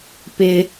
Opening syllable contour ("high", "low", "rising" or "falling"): high